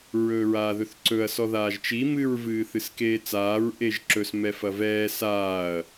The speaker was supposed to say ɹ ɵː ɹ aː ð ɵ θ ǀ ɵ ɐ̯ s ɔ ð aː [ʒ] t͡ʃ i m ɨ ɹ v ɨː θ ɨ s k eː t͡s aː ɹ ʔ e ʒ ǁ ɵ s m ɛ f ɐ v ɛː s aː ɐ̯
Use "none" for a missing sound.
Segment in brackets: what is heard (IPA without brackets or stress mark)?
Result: ʒ